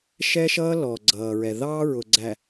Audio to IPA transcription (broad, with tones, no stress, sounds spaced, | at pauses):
ʃ ɛ˦ ʃ ʌː˦ l ɔ˨ ɡ͡ǀ ʌː˨ ɹ ɛ˨ ð ɑː˦ ɹ ʊ˨ ɡ͡ǀ æ˨